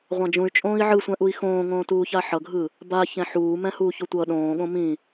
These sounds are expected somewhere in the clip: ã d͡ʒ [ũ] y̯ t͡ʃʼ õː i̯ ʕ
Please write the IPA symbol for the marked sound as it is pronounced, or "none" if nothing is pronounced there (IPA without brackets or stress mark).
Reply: ũ